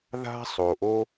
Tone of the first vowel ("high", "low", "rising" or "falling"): high